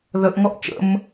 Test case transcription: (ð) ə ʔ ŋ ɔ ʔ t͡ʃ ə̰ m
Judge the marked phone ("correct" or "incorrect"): correct